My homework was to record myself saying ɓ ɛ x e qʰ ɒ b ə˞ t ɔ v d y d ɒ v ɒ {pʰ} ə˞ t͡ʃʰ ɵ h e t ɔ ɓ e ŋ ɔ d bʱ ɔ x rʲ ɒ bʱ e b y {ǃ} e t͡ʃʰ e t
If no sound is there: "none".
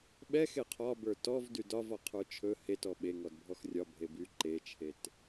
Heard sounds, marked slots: qʰ, ǃ

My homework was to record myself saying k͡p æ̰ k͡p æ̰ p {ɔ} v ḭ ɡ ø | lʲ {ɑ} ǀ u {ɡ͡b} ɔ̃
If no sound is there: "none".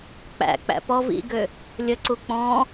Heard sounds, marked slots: ɔ, ə, k͡p

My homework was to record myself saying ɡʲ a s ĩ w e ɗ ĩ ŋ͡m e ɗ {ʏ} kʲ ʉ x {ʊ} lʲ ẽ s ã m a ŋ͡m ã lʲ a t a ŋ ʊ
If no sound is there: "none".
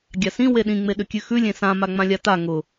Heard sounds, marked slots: ʏ, ʉ

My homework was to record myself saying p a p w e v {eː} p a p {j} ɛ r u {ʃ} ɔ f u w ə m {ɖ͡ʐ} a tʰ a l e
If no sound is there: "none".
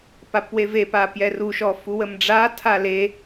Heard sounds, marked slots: e, j, ʃ, ɖ͡ʐ

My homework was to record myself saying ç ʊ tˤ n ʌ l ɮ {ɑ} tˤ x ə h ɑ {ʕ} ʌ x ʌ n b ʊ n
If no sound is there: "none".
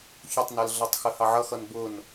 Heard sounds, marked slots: ʌ, ʕ

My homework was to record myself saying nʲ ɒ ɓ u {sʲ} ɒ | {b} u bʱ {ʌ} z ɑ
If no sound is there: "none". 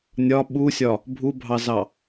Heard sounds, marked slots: sʲ, bʱ, ɑ

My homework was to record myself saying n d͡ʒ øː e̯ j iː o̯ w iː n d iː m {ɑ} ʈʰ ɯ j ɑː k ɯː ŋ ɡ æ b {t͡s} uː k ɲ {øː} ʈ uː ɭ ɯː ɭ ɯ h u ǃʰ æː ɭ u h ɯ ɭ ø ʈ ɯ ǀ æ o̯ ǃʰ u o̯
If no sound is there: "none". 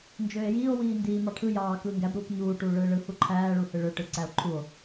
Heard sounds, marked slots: ɑ, ɾ, uː

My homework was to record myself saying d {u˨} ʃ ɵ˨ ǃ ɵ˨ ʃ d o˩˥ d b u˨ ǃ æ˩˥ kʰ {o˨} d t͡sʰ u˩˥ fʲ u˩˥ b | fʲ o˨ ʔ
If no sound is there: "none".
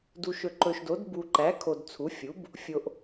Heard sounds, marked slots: u˨, o˨

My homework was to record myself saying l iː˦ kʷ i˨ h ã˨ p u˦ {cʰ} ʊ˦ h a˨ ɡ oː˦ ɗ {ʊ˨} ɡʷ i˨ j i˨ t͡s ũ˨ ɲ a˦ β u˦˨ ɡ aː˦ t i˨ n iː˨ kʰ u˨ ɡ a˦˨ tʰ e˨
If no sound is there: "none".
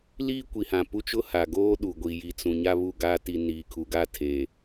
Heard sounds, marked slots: t͡ʃ, u˨

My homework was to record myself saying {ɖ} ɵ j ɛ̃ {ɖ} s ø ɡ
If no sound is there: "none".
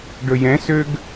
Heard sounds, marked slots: ɖ, none

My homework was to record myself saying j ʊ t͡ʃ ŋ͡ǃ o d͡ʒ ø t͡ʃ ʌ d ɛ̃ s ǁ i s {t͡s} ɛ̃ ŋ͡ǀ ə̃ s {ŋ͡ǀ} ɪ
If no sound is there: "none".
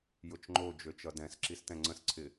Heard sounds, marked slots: t, ǀʰ

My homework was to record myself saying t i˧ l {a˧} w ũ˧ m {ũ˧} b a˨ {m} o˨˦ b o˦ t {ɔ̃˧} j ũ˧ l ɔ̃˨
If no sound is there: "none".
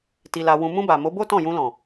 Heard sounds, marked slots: a˧, ũ˧, m, ɔ̃˦˨

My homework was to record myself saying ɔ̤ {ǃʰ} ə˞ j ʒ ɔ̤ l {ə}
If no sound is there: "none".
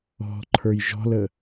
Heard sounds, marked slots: ǃʰ, ə

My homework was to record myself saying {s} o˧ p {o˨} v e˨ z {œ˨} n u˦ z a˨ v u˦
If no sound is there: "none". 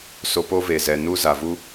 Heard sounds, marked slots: s, o˦, ɛ˨

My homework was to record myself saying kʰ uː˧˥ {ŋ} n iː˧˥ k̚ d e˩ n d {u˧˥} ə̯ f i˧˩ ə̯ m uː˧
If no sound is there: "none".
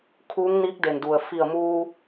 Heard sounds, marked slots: ŋ, u˩

